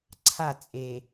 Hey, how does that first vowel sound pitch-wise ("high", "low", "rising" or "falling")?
falling